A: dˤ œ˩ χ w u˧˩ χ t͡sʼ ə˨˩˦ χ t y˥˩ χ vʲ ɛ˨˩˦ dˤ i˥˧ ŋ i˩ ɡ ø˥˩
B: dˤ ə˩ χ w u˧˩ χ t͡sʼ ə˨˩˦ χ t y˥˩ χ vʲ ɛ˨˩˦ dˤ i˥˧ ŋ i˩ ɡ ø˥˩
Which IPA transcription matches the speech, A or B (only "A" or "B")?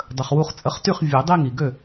B